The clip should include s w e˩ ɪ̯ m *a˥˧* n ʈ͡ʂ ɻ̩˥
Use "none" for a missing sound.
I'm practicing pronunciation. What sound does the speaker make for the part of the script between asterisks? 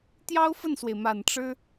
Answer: a˨˩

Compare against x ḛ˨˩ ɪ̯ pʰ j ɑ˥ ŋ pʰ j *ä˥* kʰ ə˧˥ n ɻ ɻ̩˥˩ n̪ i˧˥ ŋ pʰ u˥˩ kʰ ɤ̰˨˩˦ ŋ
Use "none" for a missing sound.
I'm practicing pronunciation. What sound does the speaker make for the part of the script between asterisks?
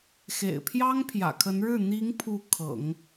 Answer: ä̰˨˩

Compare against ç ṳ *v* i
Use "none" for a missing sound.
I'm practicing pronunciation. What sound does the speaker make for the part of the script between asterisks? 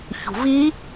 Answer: v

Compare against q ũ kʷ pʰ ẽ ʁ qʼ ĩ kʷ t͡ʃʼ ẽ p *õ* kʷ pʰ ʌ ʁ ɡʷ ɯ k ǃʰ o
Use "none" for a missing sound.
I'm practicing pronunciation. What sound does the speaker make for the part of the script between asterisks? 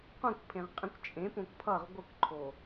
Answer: õ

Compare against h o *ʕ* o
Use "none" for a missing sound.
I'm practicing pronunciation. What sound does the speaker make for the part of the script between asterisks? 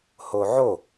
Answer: ʕ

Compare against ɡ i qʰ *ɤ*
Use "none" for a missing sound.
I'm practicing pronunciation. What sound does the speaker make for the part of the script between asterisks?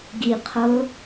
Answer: ɤ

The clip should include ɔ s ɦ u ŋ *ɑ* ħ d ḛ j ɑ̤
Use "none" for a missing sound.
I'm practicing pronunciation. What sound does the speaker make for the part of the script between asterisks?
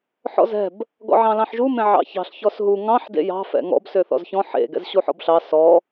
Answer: ɑ̃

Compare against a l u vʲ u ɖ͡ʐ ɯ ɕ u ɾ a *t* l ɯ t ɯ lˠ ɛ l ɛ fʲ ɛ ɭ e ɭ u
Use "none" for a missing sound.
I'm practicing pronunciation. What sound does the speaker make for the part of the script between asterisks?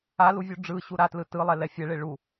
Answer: t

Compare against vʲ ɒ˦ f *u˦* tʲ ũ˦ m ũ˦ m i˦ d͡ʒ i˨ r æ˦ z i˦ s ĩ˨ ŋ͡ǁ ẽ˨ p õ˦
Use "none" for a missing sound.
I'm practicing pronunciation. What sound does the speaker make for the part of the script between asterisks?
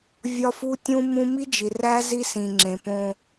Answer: u˦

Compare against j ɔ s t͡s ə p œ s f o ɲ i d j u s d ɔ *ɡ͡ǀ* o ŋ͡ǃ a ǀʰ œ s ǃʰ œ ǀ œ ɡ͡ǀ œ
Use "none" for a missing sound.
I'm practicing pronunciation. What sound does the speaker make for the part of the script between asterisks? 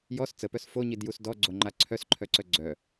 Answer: ɡ͡ǀ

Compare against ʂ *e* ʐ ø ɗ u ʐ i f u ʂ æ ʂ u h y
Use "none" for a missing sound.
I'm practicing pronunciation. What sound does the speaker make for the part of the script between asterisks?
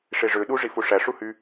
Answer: e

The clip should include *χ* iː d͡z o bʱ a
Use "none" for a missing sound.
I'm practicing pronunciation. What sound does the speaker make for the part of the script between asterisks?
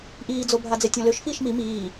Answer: ʔ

